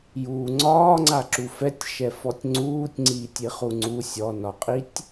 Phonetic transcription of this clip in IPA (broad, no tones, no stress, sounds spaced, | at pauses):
j uː ŋ͡ǀ ɒː ŋ͡ǀ a ǁ u f ɛ tʲ ʃ ɛ f ɔ tʲ ŋ͡ǀ uː tʲ ŋ͡ǀ iː tʲ i χ u ŋ͡ǀ u sʲ ɔ n ɒ qʼ i tʲ